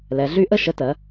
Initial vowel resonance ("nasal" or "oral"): oral